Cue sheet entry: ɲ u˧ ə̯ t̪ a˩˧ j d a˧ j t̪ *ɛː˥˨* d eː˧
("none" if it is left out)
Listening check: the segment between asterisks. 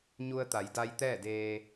ɛː˥˨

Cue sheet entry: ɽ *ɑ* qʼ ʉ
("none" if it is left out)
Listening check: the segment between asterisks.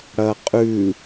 ɐ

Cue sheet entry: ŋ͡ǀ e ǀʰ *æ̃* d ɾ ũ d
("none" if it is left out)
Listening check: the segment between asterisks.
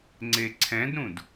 ɛ̃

